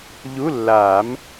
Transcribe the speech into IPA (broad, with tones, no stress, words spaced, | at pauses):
ʎu˧˥˧lːaː˨˩˦m